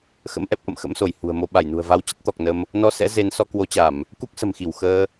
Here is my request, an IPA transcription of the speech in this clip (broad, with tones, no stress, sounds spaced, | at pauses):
x ə̰˧˥ m ʔ ɛ˦˥ p̚ ʔ ə̰˧˨ m x ə̰˧˥ m s o˧˩ j h ṳ˨˩ ə̯ m o˧ ɓ a˧˩ j n ṳ˨˩ ə̯ v a˨˦ w t͡ɕ ə˦˥ t̚ t̪ ɔ˨˩ k̚ n ə˧ m | n ɔ˧ s ɛ̰˧˥ z e˨˦ n s ɔ˧ k w o˨˦ t͡ɕ a˧˩˨ m | k u˦˥ k̚ s ə̤˨˩ m x i˧˩ w x əː˧